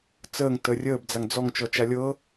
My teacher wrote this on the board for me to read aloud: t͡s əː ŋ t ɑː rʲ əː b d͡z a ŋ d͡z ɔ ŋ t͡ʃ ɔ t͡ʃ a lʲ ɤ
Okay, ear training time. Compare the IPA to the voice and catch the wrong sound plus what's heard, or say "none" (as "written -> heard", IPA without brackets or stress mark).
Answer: ɑː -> əː